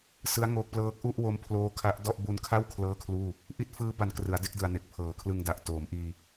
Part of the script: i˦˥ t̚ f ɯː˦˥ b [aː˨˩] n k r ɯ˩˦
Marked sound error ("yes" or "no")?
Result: yes